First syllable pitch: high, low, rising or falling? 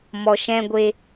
low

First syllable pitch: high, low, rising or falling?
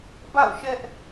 falling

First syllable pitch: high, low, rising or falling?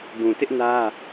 low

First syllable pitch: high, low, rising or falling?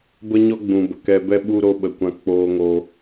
high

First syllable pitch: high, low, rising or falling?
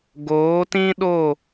rising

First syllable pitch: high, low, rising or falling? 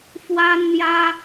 high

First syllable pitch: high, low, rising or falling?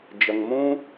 low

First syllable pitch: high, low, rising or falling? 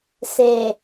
low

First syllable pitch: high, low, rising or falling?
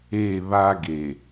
falling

